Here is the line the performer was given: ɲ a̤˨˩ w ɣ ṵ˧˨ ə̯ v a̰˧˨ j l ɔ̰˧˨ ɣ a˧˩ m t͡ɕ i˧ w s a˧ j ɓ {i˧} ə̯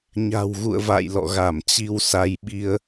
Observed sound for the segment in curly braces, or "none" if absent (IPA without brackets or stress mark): i˧